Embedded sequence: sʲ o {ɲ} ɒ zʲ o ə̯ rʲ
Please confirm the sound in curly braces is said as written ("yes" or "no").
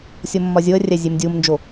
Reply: no